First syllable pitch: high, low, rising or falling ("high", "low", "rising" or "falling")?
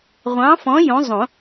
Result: rising